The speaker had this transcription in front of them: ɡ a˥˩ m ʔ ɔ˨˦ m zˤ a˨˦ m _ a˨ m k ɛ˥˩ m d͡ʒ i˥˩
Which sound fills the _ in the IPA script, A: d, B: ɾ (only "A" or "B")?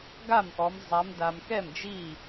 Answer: A